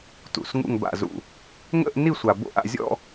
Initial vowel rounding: rounded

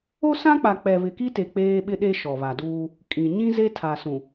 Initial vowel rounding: rounded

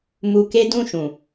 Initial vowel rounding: rounded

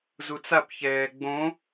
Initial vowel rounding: rounded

